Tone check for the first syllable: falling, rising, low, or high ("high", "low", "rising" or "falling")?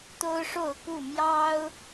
high